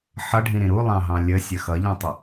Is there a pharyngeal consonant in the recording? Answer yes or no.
yes